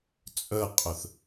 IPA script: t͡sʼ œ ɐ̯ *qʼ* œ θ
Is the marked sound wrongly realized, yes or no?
no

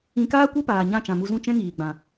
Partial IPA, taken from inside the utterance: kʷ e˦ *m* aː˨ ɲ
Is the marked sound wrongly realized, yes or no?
yes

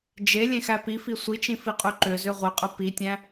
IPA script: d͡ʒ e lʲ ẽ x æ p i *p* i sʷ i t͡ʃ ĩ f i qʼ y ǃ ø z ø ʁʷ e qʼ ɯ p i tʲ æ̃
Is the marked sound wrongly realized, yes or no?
yes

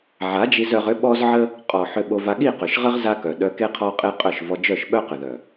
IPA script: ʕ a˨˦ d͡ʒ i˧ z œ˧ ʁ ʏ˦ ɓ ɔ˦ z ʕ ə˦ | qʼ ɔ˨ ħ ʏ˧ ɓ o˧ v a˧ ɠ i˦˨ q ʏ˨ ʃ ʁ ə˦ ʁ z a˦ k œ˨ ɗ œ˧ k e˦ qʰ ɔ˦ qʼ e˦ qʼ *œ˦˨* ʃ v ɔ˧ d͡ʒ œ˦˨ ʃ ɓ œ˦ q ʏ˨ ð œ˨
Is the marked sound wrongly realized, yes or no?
no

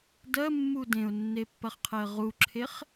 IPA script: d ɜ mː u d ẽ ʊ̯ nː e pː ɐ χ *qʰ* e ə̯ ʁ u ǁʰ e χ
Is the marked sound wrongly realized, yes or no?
no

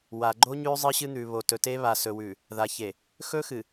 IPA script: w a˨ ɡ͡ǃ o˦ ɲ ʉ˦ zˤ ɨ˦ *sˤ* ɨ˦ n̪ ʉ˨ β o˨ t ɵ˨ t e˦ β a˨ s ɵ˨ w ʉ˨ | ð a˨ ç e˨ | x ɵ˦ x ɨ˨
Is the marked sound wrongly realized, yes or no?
yes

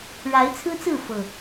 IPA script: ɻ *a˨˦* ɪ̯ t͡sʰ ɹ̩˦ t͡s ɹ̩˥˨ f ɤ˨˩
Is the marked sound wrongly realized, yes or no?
no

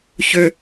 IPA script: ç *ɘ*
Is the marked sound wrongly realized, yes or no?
yes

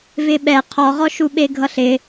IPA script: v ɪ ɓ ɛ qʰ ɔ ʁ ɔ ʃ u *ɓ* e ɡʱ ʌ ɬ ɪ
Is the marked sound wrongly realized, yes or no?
no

